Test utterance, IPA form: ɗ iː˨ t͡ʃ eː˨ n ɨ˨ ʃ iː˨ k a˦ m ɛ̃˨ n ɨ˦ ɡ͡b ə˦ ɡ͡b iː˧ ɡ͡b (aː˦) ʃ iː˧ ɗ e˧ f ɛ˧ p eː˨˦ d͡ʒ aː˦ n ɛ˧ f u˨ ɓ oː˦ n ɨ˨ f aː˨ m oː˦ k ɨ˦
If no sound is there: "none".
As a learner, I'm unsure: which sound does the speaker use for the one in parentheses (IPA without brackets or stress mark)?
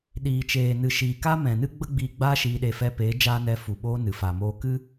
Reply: aː˦